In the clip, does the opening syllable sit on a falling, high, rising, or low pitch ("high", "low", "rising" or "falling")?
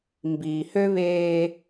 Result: low